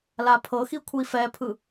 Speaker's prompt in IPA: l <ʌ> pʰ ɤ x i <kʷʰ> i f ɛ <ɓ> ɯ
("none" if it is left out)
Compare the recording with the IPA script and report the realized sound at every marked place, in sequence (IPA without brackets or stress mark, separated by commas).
a, kʷʰ, pʰ